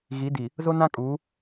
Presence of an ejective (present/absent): present